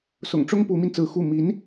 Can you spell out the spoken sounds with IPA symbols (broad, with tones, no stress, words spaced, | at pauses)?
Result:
sʊ̰˨˩ŋʈ͡ʂʊ˥ŋ pu˧˥mi˧nt͡sɹ̩˧˥ xu˥˩ mi˧˥n